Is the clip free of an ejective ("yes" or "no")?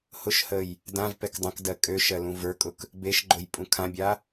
no